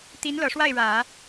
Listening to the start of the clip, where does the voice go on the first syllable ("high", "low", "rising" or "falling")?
rising